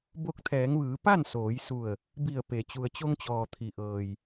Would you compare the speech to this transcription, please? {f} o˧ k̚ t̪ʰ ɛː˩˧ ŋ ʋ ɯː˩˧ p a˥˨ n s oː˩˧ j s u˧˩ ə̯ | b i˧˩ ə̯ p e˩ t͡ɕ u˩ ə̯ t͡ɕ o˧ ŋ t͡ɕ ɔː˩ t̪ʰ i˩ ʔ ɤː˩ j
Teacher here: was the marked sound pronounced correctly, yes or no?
no